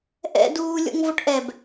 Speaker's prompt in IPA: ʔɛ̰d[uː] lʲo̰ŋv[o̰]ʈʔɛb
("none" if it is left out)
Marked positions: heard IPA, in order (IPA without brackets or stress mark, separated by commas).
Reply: uː, o